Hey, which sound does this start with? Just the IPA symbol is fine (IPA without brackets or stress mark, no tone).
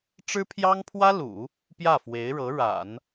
ʈ͡ʂ